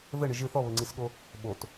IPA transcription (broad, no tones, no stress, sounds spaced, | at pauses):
ð ɘ ɳ ɨ ʒ ɨ θ ɔ β ɘ ŋ͡ǀ i s ɠ o | ɓ o t